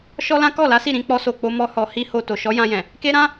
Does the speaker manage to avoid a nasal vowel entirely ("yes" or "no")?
no